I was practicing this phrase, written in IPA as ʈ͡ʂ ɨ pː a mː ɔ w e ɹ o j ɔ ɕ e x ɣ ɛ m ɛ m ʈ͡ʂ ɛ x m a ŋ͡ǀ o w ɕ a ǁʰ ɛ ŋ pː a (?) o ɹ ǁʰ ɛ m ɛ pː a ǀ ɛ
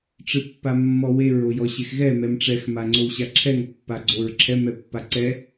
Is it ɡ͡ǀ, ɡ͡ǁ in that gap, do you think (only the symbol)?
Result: ɡ͡ǀ